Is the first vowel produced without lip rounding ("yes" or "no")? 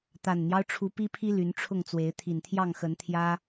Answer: yes